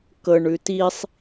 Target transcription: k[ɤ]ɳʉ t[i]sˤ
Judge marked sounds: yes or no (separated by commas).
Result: yes, yes